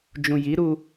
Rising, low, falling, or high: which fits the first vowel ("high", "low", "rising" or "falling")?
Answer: low